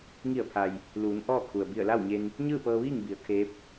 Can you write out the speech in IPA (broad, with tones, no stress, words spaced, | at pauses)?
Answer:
ŋi˧˩ə̯pʰa˩j | luː˩˧n ʔɔː˥˨kʰu˩ə̯ bi˧˩ə̯la˥˨wɲe˧n | ɲɯː˥˨pɤː˧ʋiː˥˨ŋ bi˩˧ə̯ kʰeː˧˥p̚